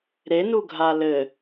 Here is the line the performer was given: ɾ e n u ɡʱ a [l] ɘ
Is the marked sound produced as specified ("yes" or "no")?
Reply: yes